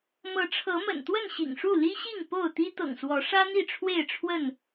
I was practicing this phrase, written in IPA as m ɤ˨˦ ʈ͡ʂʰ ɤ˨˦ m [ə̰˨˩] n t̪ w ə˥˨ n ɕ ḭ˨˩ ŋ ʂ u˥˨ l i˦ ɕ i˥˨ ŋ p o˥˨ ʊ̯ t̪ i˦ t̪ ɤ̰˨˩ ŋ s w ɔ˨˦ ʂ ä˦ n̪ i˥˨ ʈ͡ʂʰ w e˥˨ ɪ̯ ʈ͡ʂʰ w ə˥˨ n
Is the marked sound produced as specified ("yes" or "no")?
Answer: yes